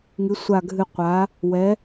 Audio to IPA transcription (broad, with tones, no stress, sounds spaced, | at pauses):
ŋ ɨ˨˥ sʷ a˦˨ ɡʱ ɨ˦˨ qʷ a˨˥ | w ɛ˨˥